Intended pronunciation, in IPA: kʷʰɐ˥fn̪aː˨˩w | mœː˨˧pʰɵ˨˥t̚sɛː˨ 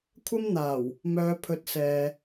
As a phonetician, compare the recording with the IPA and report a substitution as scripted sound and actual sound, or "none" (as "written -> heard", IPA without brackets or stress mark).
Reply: f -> m